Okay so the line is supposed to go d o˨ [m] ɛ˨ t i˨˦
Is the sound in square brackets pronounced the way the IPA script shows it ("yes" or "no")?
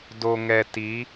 no